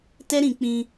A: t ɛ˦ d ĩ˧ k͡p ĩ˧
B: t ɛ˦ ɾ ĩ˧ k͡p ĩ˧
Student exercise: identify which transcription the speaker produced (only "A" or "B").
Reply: B